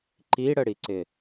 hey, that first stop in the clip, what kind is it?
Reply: click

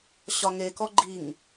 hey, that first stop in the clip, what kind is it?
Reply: plain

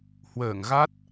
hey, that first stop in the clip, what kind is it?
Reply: plain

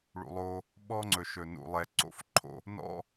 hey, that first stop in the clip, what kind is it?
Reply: implosive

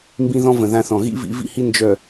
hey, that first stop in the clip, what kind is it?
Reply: plain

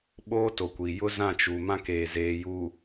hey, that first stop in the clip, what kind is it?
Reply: implosive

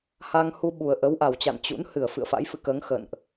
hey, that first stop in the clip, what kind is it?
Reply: implosive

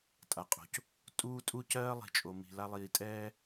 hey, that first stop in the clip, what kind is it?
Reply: ejective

